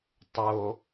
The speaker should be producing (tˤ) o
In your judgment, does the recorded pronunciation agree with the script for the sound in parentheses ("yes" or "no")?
yes